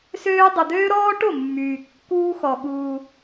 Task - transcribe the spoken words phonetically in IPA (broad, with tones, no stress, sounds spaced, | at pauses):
s øː˦ dˤ ə˧ d̪ øː˦ ɾ ɔː˦ ʈ o˦˨ mː yː˨ kː uː˦ x ɔ˧ ɠ uː˧